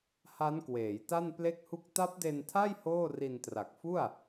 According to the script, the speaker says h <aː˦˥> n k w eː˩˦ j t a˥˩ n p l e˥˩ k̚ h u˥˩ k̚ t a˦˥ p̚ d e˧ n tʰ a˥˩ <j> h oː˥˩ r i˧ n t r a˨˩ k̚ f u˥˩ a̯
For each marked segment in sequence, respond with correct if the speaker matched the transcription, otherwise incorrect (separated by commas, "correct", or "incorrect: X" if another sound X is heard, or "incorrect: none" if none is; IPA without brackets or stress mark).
incorrect: a˦˥, correct